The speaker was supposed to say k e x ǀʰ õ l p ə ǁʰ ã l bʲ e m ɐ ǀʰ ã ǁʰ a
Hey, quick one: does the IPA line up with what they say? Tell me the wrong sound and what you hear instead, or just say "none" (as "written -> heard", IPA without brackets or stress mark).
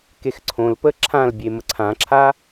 ɐ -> ə